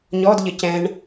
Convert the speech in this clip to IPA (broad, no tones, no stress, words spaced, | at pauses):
ɲɔdʎə cɛ̃ɳ